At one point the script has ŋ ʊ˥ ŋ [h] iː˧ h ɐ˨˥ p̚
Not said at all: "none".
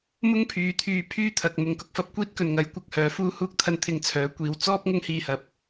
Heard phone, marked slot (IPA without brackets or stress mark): h